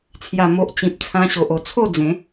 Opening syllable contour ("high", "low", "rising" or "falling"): low